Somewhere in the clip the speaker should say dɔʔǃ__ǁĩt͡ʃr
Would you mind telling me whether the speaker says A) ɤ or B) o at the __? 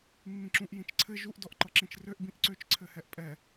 A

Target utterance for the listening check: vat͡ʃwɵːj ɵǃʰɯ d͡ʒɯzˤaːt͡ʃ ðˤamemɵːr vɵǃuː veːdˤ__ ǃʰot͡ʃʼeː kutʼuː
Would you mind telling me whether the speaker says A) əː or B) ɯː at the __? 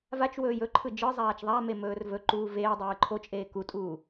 B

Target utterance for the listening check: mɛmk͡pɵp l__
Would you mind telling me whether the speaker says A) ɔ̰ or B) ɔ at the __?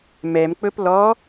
B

